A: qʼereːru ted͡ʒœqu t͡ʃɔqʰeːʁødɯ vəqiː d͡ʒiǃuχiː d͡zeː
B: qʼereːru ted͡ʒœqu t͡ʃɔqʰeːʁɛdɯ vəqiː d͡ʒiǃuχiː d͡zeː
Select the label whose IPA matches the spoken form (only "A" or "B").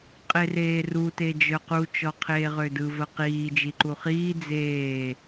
A